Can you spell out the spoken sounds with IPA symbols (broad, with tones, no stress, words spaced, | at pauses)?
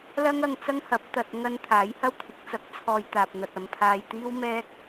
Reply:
lɐ˥ŋɐ˧ŋt͡sɐ˥ŋ hɐ˨˥p̚t̪ɐ˧t̚ ŋɐ˧n t̪ʰaː˨˥jhɐ˥wt̪ʰɪ˨˥k̚t͡sɐ˧k̚ t͡sʰɔː˧jt̪aː˨p̚n̪ɐ˨t̚ ɐ˨mpʰaː˧jt̪iː˥w mɛː˥k̚